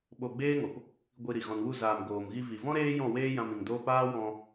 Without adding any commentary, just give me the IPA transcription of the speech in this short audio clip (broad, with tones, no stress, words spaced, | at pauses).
ɓo˧ɡ͡beː˦ŋo˨p | ɡʷi˧ɾi˨ ɣɔ̃˨nwu˦˨ zaː˨m ɡoː˨mɣi˧ vi˨vɔ̃˦ ɾeː˦jɔ̃˦˨weː˦ jã˧mĩ˨ŋdoː˦p aː˦wɔ̃˧